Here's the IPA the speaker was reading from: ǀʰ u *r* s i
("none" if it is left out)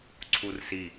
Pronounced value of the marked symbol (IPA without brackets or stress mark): r